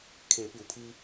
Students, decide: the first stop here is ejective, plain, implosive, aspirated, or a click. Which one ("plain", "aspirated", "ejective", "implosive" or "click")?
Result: aspirated